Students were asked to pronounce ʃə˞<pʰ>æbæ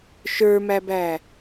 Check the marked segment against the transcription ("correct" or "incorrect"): incorrect